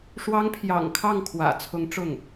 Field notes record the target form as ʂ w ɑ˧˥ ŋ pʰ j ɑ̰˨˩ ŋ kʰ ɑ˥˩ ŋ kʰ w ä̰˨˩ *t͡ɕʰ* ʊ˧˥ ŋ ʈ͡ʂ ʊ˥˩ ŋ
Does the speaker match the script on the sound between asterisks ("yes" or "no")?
no